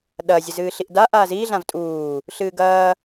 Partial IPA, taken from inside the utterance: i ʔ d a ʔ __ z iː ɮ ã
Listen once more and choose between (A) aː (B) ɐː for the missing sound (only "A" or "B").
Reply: A